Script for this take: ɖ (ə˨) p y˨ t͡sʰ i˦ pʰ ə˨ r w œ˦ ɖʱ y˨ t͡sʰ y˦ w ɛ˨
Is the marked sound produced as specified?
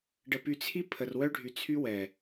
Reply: yes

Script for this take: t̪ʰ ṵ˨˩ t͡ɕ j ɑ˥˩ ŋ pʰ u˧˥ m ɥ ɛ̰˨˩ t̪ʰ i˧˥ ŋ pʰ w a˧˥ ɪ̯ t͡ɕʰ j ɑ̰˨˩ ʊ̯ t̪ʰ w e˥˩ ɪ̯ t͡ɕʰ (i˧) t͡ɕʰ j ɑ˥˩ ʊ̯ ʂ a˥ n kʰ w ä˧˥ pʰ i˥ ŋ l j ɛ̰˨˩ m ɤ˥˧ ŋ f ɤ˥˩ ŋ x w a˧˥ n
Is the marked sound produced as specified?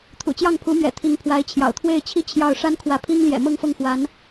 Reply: no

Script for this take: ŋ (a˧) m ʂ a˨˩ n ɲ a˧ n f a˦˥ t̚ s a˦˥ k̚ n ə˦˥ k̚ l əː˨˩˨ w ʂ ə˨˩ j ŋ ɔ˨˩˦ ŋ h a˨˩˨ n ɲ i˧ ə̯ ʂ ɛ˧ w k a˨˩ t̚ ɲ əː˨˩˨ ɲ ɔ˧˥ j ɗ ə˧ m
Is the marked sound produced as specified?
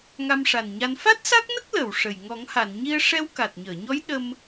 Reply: yes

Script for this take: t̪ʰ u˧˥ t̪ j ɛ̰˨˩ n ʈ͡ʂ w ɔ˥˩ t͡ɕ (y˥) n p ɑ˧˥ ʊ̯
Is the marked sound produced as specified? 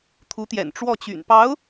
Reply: no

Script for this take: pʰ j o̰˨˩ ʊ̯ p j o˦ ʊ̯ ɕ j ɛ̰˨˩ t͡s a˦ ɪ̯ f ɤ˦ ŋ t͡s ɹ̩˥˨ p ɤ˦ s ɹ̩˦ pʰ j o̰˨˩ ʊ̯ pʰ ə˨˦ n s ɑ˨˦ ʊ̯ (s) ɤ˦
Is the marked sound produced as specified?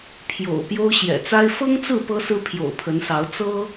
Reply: no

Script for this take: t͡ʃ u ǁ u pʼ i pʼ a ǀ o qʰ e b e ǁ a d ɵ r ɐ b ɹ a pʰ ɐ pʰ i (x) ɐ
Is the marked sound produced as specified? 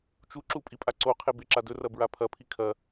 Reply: no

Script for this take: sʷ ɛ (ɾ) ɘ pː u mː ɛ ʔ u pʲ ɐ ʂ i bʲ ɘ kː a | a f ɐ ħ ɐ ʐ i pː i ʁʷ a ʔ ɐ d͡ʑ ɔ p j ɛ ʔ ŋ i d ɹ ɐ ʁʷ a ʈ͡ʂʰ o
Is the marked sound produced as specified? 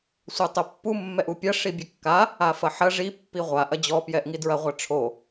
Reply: no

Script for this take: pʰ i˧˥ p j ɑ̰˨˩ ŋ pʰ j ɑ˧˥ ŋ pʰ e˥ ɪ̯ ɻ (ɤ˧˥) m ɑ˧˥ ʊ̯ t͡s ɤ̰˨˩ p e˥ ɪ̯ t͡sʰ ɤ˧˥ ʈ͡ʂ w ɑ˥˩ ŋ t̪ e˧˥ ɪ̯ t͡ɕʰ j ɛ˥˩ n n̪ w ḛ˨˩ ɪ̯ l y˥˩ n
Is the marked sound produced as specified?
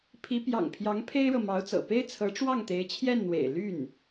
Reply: no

